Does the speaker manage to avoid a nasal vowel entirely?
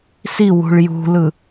yes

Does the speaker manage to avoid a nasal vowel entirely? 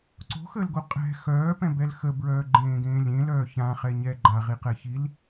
no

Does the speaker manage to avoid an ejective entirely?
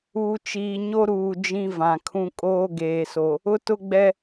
no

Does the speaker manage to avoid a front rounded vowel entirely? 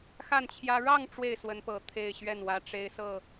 yes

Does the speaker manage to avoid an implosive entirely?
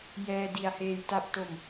yes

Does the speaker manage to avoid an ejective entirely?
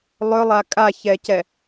no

